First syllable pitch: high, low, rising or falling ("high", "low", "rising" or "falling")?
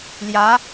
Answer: rising